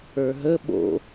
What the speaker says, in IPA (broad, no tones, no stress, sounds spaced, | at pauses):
ə˞ ɦ ə ɓ o̰